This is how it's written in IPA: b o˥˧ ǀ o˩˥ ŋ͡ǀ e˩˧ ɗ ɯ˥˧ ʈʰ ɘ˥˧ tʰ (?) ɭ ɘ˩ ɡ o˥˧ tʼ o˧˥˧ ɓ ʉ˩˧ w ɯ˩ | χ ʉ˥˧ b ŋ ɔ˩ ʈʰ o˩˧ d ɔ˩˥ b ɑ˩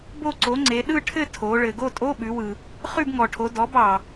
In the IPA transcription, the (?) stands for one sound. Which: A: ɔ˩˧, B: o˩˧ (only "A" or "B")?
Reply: B